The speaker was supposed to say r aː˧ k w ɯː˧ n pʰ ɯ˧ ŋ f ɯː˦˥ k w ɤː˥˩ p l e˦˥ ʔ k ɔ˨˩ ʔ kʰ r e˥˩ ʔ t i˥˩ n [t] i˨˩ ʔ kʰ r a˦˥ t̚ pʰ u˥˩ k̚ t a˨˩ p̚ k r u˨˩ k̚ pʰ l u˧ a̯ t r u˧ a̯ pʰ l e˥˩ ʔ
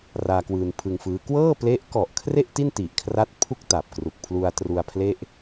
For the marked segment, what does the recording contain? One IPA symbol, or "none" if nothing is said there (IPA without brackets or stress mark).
t